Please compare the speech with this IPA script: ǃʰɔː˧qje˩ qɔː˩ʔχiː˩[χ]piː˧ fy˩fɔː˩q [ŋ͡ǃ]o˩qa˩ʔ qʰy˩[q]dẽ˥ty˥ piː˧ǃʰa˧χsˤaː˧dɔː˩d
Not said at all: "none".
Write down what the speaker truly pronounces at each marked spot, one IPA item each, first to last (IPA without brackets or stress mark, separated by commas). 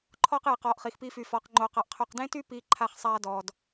x, ŋ͡ǃ, q